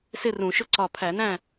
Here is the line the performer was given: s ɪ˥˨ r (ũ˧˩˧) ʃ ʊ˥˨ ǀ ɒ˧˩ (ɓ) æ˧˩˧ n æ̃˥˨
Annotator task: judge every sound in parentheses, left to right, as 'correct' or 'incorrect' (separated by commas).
correct, incorrect